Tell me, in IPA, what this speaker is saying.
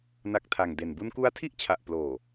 n a˦˥ k̚ tʰ a˨˩ ŋ d e˨˩ n b u˧ n k u˦˥ a̯ tʰ i˥˩ ʔ t͡ɕʰ a˨˩ ʔ p l oː˨˩

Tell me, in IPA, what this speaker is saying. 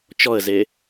t͡ʃ ɔ ə̯ z e

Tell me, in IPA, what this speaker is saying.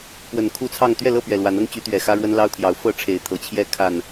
p w ə˨˩ n kʰ u˥˨ t͡sʰ ɑ˥˨ ŋ t̪ ɥ ɛ˥˨ l ɤ˥˨ p ɥ ɛ˨˩ l w a˨˦ n ɤ˦ ŋ t͡ɕ y˨˦ t̪ ɥ ɛ˨˩ x ä˦ ɻ w ə˦ n l ɑ˦ ʊ̯ t̪ʰ j ɑ˨˦ ʊ̯ f ɤ˥˨ ʈ͡ʂʰ e˨˦ ɪ̯ t̪ʰ ɤ˨˩ t͡ɕʰ j ɛ˥˨ kʰ a˨˩ n

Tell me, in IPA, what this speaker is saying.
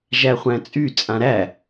ʒ æ χʷ æ̃ t͡sʼ y t͡sʼ ã ɾ æ

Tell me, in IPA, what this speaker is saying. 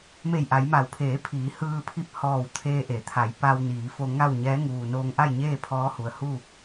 m e˧˩ j ʔ a˩˧ j m a˩˧ w pʰ eː˩˧ pʰ iː˩˧ h ɯː˧ pʰ i˧ p̚ h ɔː˧˩ w t̪ʰ eː˧ ʔ e˩˧ t̪ʰ a˩˧ j p a˧ w n iː˩˧ f o˧ ŋ a˥˨ w ɲ ɛː˧˥ ŋ uː˩ n oː˧ ŋ ʔ a˥˨ j ɲ eː˥˨ pʰ ɔː˧˥ h u˩ ə̯ h u˥˨

